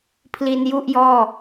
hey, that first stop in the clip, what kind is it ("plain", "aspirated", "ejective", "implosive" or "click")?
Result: aspirated